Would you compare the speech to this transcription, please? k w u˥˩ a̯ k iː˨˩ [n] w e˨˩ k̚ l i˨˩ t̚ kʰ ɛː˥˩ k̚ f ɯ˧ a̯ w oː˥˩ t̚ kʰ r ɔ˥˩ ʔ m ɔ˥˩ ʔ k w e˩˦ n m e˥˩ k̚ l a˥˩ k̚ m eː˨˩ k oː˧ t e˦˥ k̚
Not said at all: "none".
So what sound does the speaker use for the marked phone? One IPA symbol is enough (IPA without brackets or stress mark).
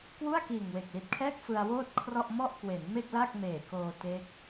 ŋ